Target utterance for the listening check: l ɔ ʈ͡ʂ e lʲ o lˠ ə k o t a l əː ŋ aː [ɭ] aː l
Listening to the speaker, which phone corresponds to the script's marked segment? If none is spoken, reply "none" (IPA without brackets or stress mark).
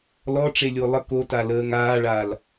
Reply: ɭ